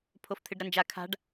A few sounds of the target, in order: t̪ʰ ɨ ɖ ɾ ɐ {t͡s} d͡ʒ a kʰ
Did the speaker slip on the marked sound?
yes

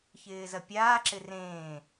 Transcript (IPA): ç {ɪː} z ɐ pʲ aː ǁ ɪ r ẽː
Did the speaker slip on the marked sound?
no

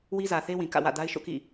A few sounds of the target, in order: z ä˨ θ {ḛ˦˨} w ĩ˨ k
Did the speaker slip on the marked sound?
yes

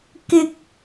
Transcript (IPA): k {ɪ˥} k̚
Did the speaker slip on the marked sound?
yes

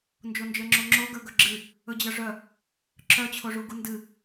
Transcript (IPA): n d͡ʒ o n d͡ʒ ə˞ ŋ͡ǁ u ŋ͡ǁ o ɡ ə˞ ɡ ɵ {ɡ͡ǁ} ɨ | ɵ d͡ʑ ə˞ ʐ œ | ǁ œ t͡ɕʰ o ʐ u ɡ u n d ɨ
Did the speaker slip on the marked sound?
no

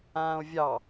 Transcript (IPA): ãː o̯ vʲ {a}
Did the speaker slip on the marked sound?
yes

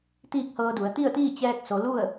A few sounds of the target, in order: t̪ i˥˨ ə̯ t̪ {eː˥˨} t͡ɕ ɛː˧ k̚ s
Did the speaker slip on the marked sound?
yes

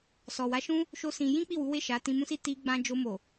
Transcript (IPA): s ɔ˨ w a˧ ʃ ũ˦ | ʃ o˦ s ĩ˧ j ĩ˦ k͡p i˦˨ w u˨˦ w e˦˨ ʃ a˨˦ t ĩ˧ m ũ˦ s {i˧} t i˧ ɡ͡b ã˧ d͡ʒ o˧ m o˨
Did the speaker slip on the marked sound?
yes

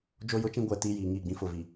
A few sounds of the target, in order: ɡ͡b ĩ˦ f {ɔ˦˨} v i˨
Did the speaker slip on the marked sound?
yes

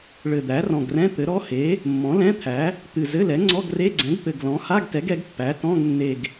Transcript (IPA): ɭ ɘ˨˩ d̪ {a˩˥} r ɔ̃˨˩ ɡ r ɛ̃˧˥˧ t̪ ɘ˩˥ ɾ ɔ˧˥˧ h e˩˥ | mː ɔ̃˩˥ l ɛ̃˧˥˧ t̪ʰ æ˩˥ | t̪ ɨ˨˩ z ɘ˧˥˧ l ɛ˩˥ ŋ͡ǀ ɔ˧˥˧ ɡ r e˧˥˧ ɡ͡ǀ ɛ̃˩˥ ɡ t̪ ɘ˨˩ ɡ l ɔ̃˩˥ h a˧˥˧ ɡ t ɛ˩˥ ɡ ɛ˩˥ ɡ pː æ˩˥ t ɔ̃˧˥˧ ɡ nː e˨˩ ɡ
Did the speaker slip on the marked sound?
yes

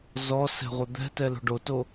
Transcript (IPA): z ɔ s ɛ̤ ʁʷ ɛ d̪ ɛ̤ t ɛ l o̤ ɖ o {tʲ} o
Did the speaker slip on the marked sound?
yes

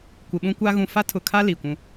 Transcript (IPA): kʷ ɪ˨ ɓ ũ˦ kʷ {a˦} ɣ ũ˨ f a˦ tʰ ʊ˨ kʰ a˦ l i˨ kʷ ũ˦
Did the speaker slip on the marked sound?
no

